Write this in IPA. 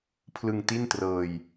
pʰ l ɯ˧ ŋ t i˥˩ n t r ɤː˧ j

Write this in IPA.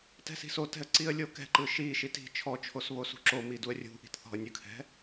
t ɛ̤ s i̤ s o t ɛ̤ ə̯ ǀ i ə̯ lʲ o k ɛ̤ ǃ ɯ ʃ i ʃ i t i̤ t͡ʃʰ ɔ t͡ʃʰ o s β o s ṳ ǁ o m i d u ə̯ rʲ ṳ ʔ i̤ t θ ɔ̤ ə̯ nʲ ɯ kʰ ɛ̤

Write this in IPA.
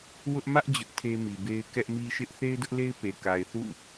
w ʊ˦ ʔ m ä˦ ʔ d͡ʑ ʊ˦ ʔ tʰ e˦ m i˨ b e˦ ɪ̯ k ɛ˦ ʔ m i˦ ʃ ɪ˦ ʔ θ e˦ ɪ̯ d ʊ˦ ʔ l e˦ ɪ̯ p e˨ k a˨ ɪ̯ θ ṵ˦˨

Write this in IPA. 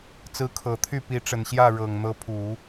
t͡s ɹ̩˧˥ kʰ ɤ˨˩ t̪ʰ y˥˩ p i˧˥ ʈ͡ʂ ə˨˩ n ɕ j ä˥˩ ɻ ɤ˨˩ ŋ n̪ ɤ˧˥ pʰ u˨˩˦

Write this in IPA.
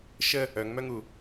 ʃ ə | œ ŋ m œ ŋ u

